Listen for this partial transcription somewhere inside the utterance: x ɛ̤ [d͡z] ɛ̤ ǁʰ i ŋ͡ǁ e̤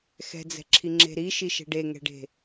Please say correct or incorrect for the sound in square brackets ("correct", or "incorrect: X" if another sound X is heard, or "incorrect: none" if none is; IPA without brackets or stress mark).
correct